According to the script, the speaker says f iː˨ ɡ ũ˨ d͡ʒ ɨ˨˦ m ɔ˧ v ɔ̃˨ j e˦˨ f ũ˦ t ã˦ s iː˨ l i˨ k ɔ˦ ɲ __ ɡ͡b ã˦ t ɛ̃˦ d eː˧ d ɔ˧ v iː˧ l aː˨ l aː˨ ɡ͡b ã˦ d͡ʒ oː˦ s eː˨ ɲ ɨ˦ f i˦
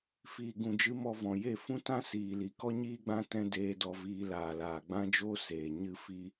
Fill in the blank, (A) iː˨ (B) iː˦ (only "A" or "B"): B